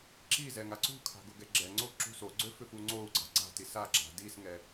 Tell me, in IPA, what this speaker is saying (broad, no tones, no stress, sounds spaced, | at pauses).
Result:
ǁ i z ɛ ŋ a ǀ ṳ kʰ a̤ ɡ ʊ ɡ ɛ ɡ͡ǁ ɛ ŋ͡ǀ o ǁ ṳ s o ɡ͡ǀ ø f ʏ f u ŋ͡ǀ o u̯ ɡ͡ǀ a̤ ɡ͡ǀ a̤ t i s a ɡ͡ǁ a̤ d i s ŋ ɛ